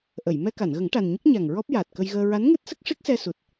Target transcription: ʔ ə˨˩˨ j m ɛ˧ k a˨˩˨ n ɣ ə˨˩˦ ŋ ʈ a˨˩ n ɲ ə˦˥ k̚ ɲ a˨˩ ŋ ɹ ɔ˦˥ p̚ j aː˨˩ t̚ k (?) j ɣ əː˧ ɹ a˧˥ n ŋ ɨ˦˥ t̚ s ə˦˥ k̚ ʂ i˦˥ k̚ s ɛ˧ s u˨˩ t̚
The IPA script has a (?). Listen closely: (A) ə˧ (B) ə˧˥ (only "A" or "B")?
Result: A